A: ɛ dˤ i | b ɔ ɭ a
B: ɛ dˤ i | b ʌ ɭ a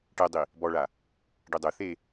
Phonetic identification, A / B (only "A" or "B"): A